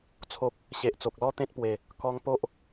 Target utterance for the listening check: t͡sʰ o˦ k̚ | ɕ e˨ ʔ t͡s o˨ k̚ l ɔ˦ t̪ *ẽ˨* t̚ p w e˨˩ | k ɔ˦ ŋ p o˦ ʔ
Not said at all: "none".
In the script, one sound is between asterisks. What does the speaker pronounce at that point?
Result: ẽ˦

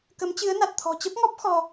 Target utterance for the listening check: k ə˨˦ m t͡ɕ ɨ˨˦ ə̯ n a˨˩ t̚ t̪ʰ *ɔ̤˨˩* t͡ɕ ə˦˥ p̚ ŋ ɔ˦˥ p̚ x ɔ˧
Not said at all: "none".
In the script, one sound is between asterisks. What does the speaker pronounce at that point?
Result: ɔ̤˨˩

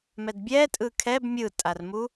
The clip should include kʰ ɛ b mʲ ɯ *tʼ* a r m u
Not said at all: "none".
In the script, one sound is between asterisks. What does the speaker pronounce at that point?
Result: tʼ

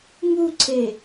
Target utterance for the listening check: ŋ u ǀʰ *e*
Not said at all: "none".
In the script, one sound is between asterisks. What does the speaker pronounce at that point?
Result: e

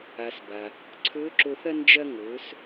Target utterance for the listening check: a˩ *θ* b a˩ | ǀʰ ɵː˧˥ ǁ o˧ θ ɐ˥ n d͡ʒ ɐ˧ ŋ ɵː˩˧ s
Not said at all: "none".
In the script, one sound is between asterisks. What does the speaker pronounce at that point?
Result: s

